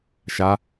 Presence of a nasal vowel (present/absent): absent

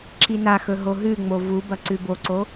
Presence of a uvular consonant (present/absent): absent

